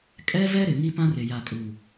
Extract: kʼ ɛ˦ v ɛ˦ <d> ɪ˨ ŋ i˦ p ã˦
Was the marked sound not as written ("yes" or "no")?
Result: yes